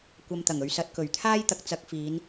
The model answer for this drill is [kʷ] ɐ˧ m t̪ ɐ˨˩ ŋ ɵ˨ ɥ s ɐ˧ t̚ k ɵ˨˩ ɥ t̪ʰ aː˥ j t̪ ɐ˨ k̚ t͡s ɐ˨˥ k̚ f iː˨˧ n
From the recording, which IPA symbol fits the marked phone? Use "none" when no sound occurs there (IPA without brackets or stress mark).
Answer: kʷ